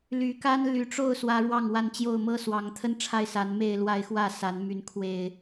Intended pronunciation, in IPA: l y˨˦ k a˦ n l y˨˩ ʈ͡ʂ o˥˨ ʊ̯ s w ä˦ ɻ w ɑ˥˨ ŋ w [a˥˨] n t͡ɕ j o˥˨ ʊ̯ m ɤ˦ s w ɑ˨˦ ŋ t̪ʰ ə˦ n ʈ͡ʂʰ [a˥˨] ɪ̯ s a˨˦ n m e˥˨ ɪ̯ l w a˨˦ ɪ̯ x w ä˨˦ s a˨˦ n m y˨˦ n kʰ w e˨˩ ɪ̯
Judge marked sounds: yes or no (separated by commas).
yes, yes